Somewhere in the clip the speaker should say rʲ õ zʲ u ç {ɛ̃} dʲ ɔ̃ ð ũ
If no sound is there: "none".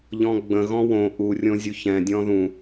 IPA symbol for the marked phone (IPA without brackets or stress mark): ɛ̃